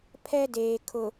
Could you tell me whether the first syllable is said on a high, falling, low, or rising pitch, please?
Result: high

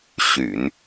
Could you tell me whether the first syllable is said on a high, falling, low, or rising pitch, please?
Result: low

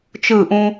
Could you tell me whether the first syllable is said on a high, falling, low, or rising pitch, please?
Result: falling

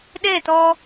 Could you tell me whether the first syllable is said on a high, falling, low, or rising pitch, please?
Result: falling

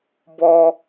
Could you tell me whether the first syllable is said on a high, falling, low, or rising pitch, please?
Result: high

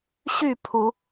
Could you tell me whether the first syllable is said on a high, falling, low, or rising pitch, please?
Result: falling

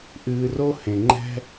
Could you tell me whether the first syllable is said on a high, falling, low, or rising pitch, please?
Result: low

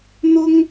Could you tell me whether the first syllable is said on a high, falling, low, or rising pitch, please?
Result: high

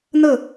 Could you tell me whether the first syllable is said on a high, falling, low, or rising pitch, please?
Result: falling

